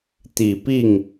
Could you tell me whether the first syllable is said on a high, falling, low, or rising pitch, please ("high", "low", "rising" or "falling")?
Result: low